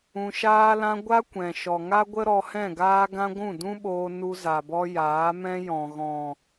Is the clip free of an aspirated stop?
yes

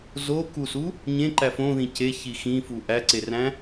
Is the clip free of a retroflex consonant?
yes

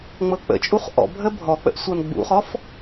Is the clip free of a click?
yes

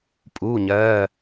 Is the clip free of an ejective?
no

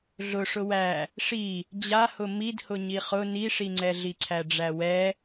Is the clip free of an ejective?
yes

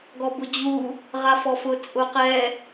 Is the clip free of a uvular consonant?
no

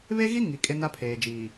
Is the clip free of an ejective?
no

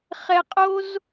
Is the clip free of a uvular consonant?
no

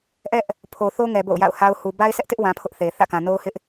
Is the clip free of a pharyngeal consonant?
yes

